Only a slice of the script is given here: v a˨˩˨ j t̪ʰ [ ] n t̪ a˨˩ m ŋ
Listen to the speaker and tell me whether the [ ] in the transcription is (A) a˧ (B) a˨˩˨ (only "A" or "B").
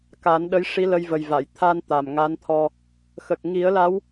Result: A